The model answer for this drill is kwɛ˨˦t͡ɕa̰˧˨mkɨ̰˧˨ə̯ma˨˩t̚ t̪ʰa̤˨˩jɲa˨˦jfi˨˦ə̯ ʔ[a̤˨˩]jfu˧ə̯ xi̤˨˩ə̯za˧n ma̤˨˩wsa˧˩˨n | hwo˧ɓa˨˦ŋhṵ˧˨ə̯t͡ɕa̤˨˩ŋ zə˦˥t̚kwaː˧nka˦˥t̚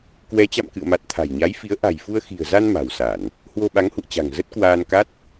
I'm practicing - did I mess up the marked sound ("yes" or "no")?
no